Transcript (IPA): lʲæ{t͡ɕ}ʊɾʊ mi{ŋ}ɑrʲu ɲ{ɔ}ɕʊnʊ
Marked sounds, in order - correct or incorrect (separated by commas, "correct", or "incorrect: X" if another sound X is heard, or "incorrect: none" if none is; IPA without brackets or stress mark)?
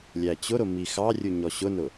correct, incorrect: x, correct